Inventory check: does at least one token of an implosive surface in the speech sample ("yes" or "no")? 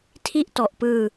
no